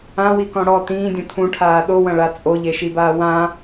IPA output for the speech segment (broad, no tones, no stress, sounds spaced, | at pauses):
ã w i k ɔ̃ ɽ ɔ t ĩː dʲ ɔ̃ tʰ ũ ʈʰ aː ɗ o w ɐ̃ ɭ a t͡sʼ o ʎ e ʃ i b aː w ã